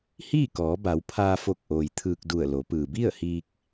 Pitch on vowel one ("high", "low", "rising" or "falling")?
falling